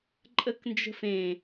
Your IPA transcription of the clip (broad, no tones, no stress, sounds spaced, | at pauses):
ǃʼ ə k n d͡ʒ ə̤ f ẽ